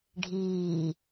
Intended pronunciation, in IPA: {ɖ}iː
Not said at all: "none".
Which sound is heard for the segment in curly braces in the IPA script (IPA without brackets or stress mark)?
ɖʱ